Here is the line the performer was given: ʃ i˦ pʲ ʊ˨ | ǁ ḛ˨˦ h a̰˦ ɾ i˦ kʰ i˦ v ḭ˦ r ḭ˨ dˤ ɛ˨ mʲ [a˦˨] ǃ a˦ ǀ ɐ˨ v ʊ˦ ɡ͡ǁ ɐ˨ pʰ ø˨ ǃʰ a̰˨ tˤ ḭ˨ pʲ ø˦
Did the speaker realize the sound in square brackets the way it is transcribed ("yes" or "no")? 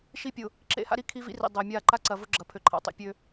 yes